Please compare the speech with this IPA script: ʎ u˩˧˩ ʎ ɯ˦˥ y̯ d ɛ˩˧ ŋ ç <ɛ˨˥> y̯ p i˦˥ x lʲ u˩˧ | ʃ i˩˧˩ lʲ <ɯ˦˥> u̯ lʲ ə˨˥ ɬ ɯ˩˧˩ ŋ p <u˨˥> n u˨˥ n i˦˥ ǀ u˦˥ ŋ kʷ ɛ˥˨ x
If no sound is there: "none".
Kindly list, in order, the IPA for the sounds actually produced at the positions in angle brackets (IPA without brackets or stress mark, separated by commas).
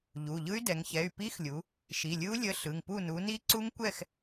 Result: ɛ˩˧˩, ɯ˦˥, u˥˨